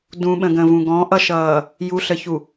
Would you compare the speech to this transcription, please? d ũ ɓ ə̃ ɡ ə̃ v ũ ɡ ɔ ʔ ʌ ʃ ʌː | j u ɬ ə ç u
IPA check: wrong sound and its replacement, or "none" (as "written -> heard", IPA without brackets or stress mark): ɔ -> ɔ̃